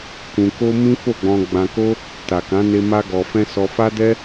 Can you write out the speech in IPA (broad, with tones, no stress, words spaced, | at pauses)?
kũ˧ko˦ mĩ˦fo˦˨ɡ͡bɔ̃˧ ɡ͡bã˧ko˦ | ta˨kã˨˦ne˧ ma˦ɡɔ˧fɛ̃˦ sɔ˧fa˦dɛ˦